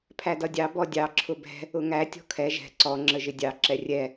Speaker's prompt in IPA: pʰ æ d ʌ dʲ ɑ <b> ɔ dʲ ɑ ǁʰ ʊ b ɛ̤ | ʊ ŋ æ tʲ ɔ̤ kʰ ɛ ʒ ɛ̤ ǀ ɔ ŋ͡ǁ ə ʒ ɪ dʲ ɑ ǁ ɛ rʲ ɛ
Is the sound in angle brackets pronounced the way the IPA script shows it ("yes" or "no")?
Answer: yes